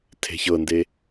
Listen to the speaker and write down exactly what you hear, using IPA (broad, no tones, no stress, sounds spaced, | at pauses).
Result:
tʰ e̤ ç ɤ n d e